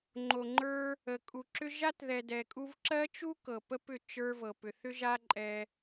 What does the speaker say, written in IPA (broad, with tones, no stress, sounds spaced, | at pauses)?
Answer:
ŋ͡ǃ o˨ ŋ͡ǃ ə˞˧ | ə˨ kʼ u˨ ǁ ʏ˦ ʒ a˦ t ð ɛ˨ d ɛ˨ kʼ u˧ v ǁ ɜ˦ t͡ʃ u˦ k ɤ˨ p ə˦ p ʏ˦˨ t͡ʃ ə˞˧ v ɤ˨ p ʏ˨ θ ʏ˦ ʒ a˦ ǃʼ ɛ˧